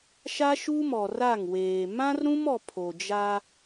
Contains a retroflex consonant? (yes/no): no